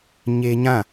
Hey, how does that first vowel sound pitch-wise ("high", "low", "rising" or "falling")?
high